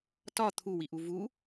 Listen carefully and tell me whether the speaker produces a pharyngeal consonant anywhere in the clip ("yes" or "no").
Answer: no